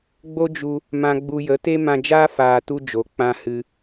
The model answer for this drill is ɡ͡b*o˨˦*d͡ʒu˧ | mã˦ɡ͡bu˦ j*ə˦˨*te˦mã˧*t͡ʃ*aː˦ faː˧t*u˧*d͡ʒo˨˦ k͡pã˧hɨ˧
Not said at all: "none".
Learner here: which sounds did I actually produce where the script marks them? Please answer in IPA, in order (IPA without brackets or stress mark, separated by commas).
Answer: o˦, ə˨˦, d͡ʒ, u˦